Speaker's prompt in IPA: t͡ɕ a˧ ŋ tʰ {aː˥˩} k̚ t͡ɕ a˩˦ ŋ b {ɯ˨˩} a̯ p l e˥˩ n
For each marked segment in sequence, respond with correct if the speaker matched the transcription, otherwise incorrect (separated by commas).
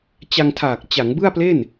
incorrect, incorrect